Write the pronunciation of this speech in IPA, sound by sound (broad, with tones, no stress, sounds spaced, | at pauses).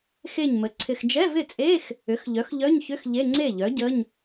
x e˥˩ ɲ m ə˩˥ ǀʰ ɪ˨ x d͡ʒ ɛ˧˥˧ v ɪ˥˩ t͡sʼ e˧˥˧ x | ʏ˩˥ x ʎ œ˩˥ x ʎ œ˧˥˧ ɲ ç ʏ˧˥˧ x ʎ e˧˥˧ ŋ͡ǀ e˥˩ ʎ œ˩˥ ɟ ə˧˥˧ ɲ